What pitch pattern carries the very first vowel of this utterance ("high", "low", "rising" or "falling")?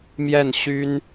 falling